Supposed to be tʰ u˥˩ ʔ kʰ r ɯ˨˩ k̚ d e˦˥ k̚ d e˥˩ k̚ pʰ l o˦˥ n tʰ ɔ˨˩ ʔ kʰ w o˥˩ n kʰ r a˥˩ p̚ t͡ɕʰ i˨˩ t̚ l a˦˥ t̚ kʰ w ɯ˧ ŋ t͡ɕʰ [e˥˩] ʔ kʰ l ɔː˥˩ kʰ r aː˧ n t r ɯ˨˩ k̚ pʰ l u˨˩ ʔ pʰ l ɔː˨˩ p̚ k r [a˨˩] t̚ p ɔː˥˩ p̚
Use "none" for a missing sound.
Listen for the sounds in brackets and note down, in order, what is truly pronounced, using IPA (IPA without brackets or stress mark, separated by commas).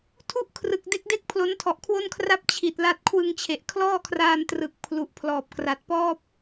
e˨˩, a˨˩